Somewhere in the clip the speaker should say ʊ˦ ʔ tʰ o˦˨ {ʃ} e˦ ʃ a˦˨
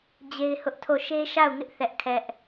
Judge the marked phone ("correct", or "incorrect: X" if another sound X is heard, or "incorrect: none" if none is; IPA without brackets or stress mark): correct